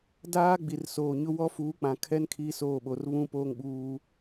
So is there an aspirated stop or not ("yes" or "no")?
yes